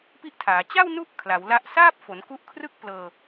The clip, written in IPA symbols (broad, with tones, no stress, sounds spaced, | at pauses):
p i˥˩ ʔ tʰ aː˩˦ t͡ɕ a˥˩ w n u˦˥ ʔ kʰ l a˩˦ w l a˦˥ ʔ s aː˥˩ p̚ f o˩˦ n k u˦˥ ʔ kʰ r ɯ˥˩ k̚ p l ɤː˧